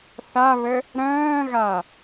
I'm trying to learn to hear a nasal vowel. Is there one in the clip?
yes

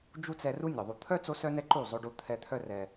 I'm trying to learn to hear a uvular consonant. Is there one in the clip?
no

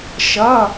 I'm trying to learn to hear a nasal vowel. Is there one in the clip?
no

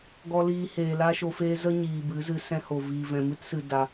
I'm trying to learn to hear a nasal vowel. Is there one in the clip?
yes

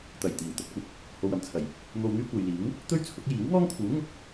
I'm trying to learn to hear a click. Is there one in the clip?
no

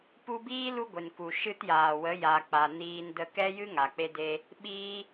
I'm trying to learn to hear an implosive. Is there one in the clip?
yes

